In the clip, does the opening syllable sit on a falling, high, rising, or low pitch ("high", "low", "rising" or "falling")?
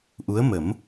rising